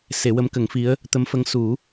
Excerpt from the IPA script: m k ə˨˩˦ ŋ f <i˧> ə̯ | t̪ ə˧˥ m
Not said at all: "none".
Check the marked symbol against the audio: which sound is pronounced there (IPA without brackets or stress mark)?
i˧˥